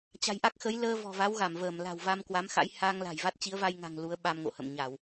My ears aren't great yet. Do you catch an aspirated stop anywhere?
no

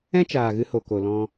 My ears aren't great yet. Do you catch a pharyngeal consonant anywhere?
no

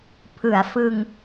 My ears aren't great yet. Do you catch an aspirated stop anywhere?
yes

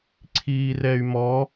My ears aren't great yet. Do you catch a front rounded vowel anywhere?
yes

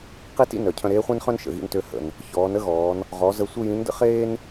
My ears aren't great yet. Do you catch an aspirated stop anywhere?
yes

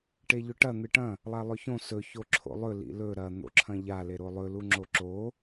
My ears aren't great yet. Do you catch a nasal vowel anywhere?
yes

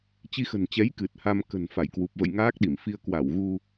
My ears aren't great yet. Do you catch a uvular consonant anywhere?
no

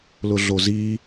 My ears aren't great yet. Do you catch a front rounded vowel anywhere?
no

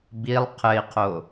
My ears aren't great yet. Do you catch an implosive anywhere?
no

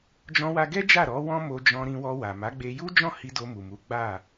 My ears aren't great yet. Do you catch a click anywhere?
no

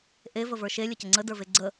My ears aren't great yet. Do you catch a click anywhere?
yes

